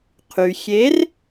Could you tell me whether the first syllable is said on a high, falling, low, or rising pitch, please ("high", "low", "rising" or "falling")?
low